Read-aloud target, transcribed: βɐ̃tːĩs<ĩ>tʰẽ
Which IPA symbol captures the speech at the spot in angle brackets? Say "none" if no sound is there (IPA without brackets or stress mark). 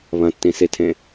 i